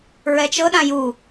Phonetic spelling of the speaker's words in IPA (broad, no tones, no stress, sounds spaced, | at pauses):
ɹ ɛ t͡ʃ ɤ ɗ ã j u